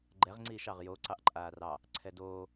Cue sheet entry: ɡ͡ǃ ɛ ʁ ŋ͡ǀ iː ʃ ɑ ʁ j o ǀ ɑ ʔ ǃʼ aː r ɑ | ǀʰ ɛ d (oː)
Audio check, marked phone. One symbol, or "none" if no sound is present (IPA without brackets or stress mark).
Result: oː